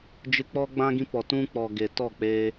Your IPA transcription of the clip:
d͡ʒ ɨ˧ k͡p ɔ˦ ɡ͡b ã˦ ɡ ĩ˦ p ɔ˨ t ũ˦ k͡p ɔ˨ ɡ e˨ t ɔ˦˨ k͡p eː˧

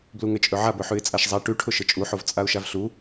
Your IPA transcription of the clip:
b l u ŋ ɘ t͡ʃʼ ɵ ʕ a b ɵ ħ ʉ ɪ̯ t͡sʼ a ʃ zˤ a ʈ ʉ ʈʰ ʊ ʃ ɘ t͡ʃʼ u ħ o v t͡sʼ a ʊ̯ ʃ a v ɬ u

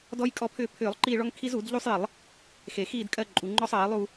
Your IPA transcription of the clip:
d ɔ˦ j kʼ ɔ˦˨ pʰ ʏː˦˨ pʰ ʏː˧˩˧ lˠ ǃ iː˦˨ ɭ ɔ˦ ŋ kʰ i˦ z u˧˩˧ d ʎ u˦ sˤ j ə˧˩˧ lˠ | x e˩ x iː˦˨ d kʼ ɜ˦˨ ǃʼ u˩ ŋ͡ǃ ɔ˦ sˤ ɜː˧˩˧ lˠ u˦˨

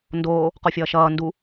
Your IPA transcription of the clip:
n d oː | q o fʲ ʌː ʃ ʌː n d u

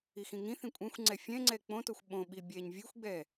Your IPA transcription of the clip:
i x ĩ ŋ ĩ θ ĩ kʷʼ ɛ̃ xʷ ŋ͡ǀ ɛ fʲ ɛ̃ ŋ͡ǀ ɛ k͡p õ t o xʷ ɓ õ ɓ i bʲ ɛ ɲ vʲ ɨ xʷ ɡ͡b ɛ

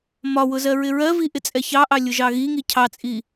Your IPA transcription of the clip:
m ɒ w ʊ z ɜ ɹ ɪ ɹ ɜ v i ʔ ɪ t͡sʼ ɛ ç ɑ ʔ ɑ lʲ ʊ ʒ ɑ ɣ i ŋ i cʰ ɑ t͡sʼ i

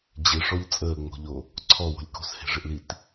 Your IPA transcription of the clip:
d͡ʑ ɪ ʂ ɔ ʎ t͡sʼ əː ŋ͡m o̤ ʎ o | ǀʰ ɔ w o̤ lʲ k o̤ s h e̤ ʐ ɪ ʔ l i t

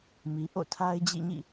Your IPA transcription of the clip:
m i˨ ʔ o̰˦˨ tʰ a˦ ɪ̯ d͡ʑ ḭ˦˨ ɲ ḭ˦˨

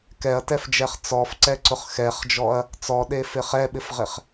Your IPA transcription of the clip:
k ɛ ɐ̯ t ɛ f d͡ʒ ɛ χ t͡s ɔ f ǀ ɛ ǀ ʊ χ x ɛ χ d͡ʒ ɔ ɐ̯ | t͡s ɔ ɗ e f ɪ χ ɛ ɓ ɪ f ʁ ɪ χ

